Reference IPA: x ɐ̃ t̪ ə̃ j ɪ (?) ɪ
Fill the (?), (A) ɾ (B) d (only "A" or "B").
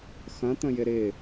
A